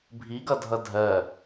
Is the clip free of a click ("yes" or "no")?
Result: yes